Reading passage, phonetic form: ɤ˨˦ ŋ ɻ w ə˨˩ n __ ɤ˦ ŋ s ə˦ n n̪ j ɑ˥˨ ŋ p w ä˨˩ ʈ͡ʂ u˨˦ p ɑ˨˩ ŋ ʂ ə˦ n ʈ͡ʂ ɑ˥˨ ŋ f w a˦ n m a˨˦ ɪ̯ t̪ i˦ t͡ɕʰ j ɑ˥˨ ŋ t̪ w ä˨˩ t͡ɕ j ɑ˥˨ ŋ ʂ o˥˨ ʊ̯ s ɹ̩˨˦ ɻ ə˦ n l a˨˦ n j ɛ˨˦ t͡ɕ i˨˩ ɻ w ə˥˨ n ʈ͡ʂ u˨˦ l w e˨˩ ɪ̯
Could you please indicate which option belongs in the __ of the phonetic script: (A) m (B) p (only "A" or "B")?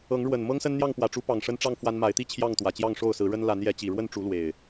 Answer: A